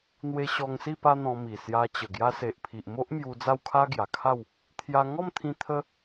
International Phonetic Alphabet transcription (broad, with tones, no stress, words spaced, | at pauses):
n̪we˧ɕɔ˧ŋsi˥˧ pa˦n̪ɔ̃˧mi˨˩ sja˧t͡ɕə˨˩ ɡja˧se˨ʔpʰi˨ʔmo˦ʔ mju˧d͡za˥˧wkʰa˦ ɡja˨˩kʰa˥˧w | t̪ʰja˧ŋɔ˥˧mt̪ʰĩ˧ t̪ʰə˦